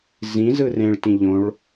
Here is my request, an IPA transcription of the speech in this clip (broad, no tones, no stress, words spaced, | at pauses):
zĩzɯ rẽɭtĩ ʎõɭ